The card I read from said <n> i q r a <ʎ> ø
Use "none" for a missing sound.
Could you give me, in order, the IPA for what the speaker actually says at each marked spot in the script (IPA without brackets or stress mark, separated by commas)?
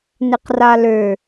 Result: n, l